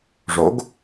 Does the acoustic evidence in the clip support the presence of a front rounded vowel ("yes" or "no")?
no